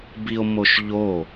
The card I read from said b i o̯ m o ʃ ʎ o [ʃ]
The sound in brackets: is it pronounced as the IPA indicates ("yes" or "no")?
no